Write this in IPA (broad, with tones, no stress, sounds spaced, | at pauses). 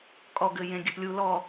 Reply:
kʼ ɔ˨ ɡ ɘ˨ j ẽ˨ ɡʲ ɘ˨ p lʲ u˨ l ɔ˨